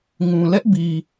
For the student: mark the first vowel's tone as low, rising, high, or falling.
low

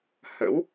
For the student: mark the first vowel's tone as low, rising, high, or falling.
rising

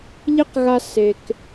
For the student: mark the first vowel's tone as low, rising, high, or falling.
high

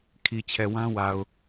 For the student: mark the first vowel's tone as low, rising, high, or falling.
low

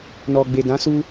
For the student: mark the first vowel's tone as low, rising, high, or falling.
low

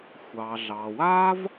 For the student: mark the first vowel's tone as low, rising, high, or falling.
low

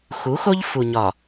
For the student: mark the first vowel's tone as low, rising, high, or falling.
rising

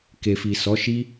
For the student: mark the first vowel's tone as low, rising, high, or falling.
low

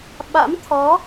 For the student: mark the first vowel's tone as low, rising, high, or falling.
rising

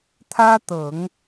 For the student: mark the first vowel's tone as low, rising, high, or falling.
high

